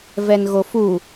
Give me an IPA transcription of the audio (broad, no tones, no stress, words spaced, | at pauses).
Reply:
vɛnɣofu